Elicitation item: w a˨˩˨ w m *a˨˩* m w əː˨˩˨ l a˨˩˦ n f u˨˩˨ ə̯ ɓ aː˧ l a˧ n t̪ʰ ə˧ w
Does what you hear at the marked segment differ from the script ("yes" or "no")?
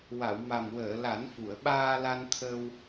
no